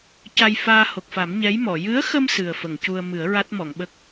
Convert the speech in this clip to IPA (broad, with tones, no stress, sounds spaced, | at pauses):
c a˧ j f aː˧ h o˨˩ k̚ f a˨˩˦ m ɲ ɛ˧˥ j m ɔ˨˩˨ j ɨ˧˥ ə̯ x ə˧ m s ɨ˨˩ ə̯ f ə˨˩˨ ŋ c u˧ ə̯ m ɨ˨˩˦ ə̯ ɹ a˦˥ t̚ m ɔ˨˩˨ ŋ ɓ ə˦˥ k̚